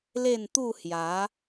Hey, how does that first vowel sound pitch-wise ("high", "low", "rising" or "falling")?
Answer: falling